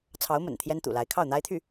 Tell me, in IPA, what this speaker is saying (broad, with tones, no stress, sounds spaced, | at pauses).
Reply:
t͡sʰ ɑ˧˥ ʊ̯ m ə̰˨˩ n t̪ʰ j ɛ˥ n t̪ ṵ˨˩ l a˧˥ ɪ̯ kʰ ɑ˥˩ ʊ̯ n̪ a˥ ɪ̯ t̪ʰ y˥˩